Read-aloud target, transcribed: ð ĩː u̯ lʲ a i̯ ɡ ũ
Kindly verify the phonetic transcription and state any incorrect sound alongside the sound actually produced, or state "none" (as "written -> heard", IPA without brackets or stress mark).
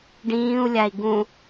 ð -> ɖ